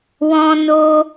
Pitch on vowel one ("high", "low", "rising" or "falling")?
high